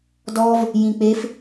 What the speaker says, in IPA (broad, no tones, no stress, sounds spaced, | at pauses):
d ɔ v | j ĩ k͡p e f